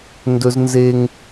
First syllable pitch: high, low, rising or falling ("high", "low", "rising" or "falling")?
high